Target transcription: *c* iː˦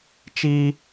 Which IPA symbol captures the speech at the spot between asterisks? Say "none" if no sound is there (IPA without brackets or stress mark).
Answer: t͡ʃ